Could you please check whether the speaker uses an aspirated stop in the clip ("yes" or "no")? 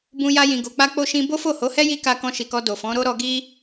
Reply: no